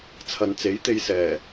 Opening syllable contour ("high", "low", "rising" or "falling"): low